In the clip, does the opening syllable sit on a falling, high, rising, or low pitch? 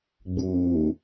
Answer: low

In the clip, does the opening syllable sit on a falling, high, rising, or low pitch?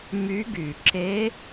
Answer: rising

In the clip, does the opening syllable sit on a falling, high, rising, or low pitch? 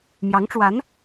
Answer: rising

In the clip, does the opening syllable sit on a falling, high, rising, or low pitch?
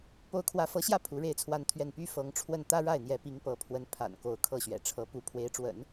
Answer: rising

